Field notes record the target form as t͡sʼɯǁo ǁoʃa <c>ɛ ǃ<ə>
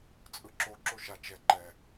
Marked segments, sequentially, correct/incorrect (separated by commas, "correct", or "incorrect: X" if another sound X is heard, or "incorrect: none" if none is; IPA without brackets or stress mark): incorrect: t͡ʃ, incorrect: ɛ